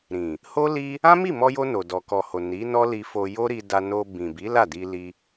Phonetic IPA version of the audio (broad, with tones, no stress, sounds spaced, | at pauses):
ɾ ĩ˨ | h o˦ l i˦ | ã˦ m i˦˨ m ɔ˧ j o˧ n o˨ d ɔ˨ k ɔ˨ h o˨ n i˨˦ n ɔ˦ l i˧ f o˧ j o˦ ɾ i˧ d a˧ n o˧ b ĩ˨ b i˨˦ l a˦˨ d i˧ l i˧